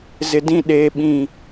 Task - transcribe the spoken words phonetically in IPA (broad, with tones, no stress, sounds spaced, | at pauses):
z ɪ˨ d ĩ˦˨ ɗ eː˨ ɓ ĩ˨